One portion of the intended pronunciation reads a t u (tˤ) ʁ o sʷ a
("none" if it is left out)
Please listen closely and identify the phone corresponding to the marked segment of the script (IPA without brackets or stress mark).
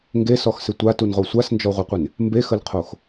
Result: n